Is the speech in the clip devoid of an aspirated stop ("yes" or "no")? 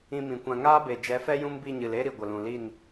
yes